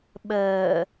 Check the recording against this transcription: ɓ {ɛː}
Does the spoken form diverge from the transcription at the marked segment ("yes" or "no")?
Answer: yes